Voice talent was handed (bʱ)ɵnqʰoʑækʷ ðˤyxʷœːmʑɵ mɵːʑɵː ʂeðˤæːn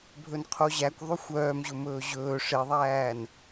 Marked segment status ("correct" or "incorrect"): correct